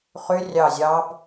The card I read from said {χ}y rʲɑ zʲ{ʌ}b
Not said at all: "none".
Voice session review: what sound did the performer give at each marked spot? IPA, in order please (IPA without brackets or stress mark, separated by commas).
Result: χ, ɑ